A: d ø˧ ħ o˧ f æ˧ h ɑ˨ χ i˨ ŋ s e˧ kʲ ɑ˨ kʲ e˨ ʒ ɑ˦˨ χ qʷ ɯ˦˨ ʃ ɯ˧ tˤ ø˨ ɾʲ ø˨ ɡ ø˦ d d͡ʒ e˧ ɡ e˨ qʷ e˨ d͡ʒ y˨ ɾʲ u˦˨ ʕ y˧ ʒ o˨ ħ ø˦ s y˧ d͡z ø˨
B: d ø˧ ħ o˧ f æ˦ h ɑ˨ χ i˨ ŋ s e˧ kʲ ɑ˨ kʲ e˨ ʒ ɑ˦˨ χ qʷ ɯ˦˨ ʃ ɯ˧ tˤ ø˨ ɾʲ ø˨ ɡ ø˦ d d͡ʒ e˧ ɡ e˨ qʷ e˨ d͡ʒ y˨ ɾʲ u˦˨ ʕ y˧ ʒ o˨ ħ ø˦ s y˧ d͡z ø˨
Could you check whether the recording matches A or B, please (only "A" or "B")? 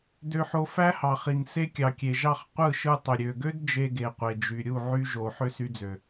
B